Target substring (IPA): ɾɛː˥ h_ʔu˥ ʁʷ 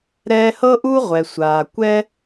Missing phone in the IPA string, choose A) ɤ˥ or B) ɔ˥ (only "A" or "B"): A